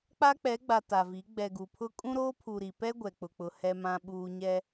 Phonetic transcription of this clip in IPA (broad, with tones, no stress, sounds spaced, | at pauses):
k͡p a˦ k͡p ɛ˨˦ ɡ͡b a˨ t a˨ v i˨˦ ɡ͡b ɛ˨ ɡ u˨ pʰ ʊ˦ kʼ ũ˦ ɾ oː˦ pʰ u˨ ɾ i˨ p ɛ˦ ɡʷ ɛ˨ k͡p ʊ˨ k͡p ʊ˨ h ɛ˦ m ã˦ ɓ uː˦ ɲ ɛ˦